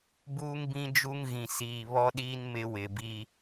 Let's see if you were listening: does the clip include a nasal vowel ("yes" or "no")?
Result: yes